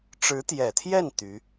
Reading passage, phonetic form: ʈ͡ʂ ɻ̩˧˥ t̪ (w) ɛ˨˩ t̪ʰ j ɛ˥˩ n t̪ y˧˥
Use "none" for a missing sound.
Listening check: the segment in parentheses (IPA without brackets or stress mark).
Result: j